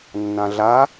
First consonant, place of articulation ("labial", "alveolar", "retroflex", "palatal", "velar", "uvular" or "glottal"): alveolar